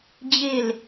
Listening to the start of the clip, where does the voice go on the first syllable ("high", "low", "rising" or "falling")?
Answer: falling